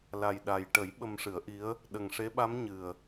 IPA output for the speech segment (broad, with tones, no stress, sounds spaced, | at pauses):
l a˨˩ j ɗ a˨˩ j ʈ ə˨˩˦ j ɓ ə˧ m ʂ ɨ˨˩˦ ə̯ ʔ i˧˥ ə̯ | ɗ ə˨˩ ŋ ʂ e˧˥ ɓ a˧˥ m ɲ ɨ˨˩ ə̯